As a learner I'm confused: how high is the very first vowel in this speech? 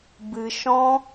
high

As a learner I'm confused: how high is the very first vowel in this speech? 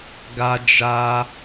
low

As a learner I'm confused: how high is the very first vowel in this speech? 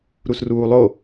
high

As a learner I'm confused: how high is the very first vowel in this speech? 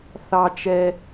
low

